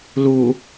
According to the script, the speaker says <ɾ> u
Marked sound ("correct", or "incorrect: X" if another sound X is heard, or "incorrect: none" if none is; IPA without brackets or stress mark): incorrect: l